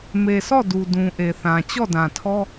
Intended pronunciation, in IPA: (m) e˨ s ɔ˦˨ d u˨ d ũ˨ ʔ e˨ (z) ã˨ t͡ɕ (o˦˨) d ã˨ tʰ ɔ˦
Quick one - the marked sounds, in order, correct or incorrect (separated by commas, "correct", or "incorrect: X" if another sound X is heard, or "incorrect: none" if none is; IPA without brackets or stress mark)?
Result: correct, incorrect: θ, incorrect: ɔ˦˨